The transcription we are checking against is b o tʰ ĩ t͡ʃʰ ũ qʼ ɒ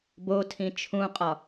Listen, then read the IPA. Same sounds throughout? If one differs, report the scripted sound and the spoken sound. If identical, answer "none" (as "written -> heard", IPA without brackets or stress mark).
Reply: none